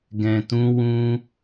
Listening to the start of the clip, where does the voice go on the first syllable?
low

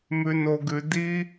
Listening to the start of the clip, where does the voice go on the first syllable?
high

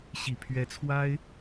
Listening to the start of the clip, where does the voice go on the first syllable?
low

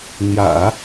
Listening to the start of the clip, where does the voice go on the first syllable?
low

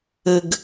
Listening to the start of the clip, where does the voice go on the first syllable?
low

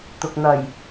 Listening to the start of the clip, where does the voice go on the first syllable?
low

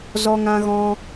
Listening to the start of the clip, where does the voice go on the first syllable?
high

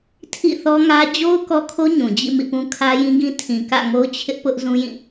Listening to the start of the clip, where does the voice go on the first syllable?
falling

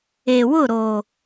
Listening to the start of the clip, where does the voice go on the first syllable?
low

